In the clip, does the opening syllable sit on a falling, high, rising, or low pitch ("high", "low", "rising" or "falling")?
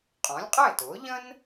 rising